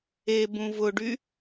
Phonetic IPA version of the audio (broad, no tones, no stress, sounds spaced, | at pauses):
e b ũ v ʊ ɖ y